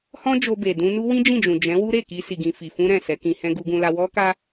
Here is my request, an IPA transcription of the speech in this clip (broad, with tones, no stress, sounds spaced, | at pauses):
h ɔ̃˦ d͡ʒ o˧ b e˨ d ũ˧ n u˦ w ĩ˦ d͡ʒ ĩ˦˨ d͡ʒ ũ˨ d͡ʒ ɛ̃˨˦ w u˦ ɾ e˦˨ k i˧ s i˧ ɡ ĩ˧ f i˨ f ũ˧ ɾ ɛ̃˨ s ɛ˨˦ k ĩ˧ h ɛ̃˦ ɡ u˧ ɡ ũ˧ l a˧ w ɔ˦ k a˦